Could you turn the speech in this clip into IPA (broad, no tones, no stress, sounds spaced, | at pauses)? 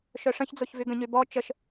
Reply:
ʃ œ ʂ ə̃ ç d͡z o ç v y ɡ ə̃ ɲ y b ɔ t͡ʃ ə ʃ